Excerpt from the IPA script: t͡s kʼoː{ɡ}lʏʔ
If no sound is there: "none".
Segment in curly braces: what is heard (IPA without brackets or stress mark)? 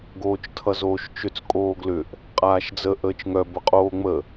ɡ